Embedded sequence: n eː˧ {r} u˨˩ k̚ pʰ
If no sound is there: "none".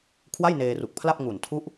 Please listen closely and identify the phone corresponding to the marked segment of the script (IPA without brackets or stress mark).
r